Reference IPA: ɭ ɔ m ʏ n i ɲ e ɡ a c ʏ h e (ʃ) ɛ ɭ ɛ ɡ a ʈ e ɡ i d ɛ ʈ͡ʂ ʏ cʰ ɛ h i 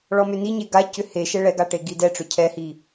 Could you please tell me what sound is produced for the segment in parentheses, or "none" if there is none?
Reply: ʃ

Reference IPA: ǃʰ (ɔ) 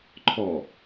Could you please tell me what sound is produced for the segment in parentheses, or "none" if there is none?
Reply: ɔ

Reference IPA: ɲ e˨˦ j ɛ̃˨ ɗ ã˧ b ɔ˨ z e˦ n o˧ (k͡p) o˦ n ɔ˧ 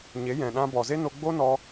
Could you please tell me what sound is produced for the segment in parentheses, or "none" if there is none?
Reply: ɡ͡b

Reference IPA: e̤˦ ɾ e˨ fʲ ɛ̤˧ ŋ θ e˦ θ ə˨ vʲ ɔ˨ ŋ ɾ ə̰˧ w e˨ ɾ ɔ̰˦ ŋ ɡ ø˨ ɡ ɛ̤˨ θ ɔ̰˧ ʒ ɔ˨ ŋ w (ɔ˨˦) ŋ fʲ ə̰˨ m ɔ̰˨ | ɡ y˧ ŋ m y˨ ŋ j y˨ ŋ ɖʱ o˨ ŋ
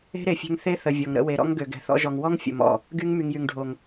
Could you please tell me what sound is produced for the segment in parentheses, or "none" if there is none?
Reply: ɔ˦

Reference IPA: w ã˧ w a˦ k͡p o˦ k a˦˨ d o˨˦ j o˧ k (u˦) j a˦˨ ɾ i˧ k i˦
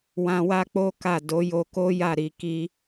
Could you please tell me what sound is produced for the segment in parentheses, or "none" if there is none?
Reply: o˦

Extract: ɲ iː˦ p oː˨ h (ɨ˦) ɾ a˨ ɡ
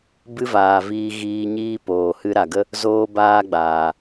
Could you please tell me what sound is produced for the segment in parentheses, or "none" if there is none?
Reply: ɨ˦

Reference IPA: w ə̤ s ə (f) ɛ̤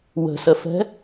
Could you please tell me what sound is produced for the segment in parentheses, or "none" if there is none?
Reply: f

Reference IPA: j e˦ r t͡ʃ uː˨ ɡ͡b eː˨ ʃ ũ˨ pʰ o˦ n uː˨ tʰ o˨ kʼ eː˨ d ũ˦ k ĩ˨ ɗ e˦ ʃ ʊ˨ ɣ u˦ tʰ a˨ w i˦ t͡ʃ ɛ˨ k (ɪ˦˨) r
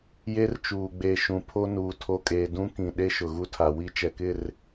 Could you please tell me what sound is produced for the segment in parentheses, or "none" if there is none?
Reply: ɪ˦˨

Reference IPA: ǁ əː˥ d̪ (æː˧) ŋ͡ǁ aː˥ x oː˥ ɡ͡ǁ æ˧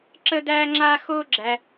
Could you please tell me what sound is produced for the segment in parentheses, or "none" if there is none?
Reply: æː˥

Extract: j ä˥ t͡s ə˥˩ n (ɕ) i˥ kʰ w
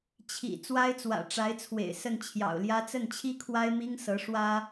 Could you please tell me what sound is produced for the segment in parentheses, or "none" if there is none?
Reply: t͡ɕʰ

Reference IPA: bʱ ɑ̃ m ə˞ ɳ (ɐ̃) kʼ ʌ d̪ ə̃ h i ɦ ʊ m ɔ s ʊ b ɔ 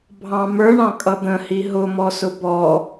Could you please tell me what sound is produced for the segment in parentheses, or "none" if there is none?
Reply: ɑ̃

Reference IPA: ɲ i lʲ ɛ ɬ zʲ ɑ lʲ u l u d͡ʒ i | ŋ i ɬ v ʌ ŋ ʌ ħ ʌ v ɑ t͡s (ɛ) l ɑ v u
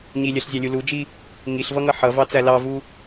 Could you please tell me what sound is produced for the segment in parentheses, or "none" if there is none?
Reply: æ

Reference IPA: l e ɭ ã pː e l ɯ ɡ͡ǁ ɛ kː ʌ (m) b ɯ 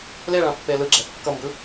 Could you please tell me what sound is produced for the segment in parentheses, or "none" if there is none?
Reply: m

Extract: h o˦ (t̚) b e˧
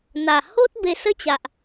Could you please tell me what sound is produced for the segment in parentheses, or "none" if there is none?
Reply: t̚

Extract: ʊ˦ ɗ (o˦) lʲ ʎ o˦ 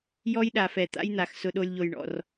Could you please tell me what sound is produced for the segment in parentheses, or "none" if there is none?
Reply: o˦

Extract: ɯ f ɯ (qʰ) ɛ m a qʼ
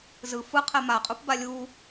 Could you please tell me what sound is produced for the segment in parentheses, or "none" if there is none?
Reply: qʰ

